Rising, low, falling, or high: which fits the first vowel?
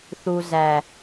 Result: low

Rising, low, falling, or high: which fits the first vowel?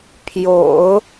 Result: low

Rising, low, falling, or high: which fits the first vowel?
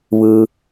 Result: low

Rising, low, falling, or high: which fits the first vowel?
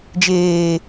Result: low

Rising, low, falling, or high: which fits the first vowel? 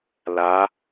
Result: rising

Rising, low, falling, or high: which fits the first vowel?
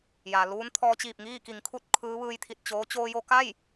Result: low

